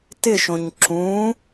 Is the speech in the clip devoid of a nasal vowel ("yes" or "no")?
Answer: no